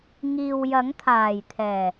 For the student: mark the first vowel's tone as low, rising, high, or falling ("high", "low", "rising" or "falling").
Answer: low